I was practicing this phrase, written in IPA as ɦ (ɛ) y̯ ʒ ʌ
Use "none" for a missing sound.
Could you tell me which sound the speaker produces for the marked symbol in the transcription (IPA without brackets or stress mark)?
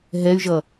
ɛ